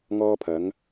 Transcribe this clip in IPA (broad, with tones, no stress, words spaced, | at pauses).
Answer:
ŋɔː˧pʰɐ˨˧ŋ